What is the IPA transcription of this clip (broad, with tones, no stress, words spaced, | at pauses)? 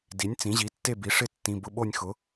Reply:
di˩˥nʲ t͡sĩ˩˥ʑi˩˥tːe˥˨bi˩˥ ʂɪ˥˨tːĩ˩˧˩ bʊ˦ɓo˥˨nʲxʊ˩˥